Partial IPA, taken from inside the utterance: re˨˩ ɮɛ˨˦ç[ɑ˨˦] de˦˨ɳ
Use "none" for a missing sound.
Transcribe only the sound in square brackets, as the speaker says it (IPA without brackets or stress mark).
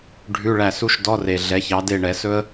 ɑ˨˦